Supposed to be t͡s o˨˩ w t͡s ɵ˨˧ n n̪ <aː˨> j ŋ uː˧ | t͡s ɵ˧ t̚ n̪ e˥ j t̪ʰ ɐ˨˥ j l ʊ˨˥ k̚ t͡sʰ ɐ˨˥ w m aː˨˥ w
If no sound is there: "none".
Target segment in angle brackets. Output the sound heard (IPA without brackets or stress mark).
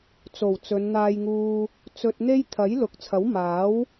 aː˧